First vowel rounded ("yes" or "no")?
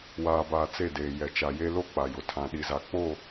no